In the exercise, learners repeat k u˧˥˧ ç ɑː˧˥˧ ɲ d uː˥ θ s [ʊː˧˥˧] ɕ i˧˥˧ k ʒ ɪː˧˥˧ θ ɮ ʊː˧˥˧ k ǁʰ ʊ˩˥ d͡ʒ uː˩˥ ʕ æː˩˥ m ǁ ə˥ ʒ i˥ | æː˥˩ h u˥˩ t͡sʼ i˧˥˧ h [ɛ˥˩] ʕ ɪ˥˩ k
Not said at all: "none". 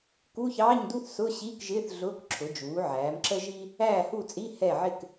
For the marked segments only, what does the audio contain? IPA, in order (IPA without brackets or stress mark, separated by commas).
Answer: ʊː˧˥˧, ɛ˥˩